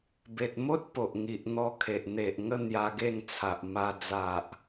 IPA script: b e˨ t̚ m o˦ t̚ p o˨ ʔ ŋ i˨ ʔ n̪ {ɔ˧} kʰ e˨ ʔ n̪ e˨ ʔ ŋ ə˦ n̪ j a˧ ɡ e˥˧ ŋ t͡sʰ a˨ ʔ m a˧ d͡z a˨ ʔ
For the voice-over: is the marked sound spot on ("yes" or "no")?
yes